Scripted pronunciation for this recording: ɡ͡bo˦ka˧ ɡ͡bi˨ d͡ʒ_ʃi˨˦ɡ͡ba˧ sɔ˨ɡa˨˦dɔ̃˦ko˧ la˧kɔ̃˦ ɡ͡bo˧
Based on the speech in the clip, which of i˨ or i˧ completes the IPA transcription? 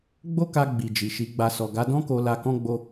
i˨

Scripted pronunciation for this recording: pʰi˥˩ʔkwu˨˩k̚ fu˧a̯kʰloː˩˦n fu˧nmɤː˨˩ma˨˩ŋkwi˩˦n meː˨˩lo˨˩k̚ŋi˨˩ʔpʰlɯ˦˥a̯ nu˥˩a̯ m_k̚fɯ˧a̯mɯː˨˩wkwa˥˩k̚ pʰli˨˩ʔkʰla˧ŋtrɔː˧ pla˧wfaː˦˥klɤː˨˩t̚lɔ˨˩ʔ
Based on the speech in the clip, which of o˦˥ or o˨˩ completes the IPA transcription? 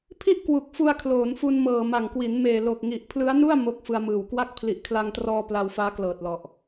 o˦˥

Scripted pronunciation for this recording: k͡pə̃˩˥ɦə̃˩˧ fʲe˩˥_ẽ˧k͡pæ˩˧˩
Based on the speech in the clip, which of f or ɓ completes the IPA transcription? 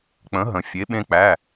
ɓ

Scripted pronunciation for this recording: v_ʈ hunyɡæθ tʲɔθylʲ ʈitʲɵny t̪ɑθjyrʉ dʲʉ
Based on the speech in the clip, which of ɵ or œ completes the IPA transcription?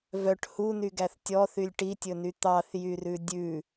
œ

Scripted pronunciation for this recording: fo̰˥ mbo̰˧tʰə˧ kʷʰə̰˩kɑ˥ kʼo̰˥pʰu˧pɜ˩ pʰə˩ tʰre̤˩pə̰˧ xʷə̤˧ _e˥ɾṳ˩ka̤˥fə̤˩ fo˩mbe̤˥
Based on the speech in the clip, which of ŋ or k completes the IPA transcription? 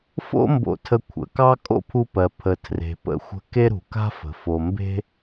k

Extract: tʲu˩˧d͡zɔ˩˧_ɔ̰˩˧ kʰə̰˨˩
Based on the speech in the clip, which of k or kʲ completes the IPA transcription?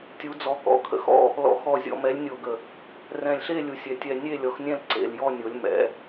k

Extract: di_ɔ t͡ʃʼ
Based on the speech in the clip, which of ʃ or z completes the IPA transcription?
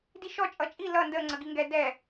ʃ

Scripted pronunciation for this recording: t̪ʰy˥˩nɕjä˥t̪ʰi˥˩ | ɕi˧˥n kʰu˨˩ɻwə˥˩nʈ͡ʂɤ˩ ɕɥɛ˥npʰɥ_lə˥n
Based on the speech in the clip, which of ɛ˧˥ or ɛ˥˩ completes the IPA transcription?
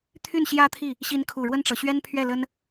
ɛ˥˩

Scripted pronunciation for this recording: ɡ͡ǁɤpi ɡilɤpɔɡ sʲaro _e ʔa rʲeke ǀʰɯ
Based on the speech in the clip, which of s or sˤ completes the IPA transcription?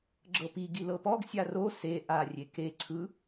s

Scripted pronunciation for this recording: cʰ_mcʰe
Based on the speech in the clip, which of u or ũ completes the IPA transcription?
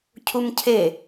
u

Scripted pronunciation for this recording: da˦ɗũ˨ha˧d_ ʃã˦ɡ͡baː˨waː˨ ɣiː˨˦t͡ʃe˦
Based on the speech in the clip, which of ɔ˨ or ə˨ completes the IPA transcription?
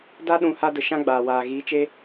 ə˨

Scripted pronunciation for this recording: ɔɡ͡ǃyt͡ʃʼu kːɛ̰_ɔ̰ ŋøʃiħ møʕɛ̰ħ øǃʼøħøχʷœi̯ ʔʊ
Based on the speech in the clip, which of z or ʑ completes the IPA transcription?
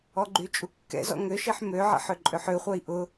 z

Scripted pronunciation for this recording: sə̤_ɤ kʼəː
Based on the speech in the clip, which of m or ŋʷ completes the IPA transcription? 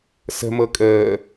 m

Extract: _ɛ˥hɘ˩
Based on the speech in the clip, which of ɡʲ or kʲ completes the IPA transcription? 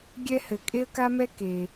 ɡʲ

